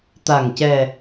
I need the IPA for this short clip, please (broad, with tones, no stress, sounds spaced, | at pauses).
t̪ a˨˩ ŋ c ɛ˨˩